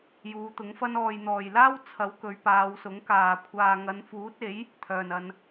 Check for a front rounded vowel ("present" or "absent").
present